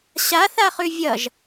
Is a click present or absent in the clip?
absent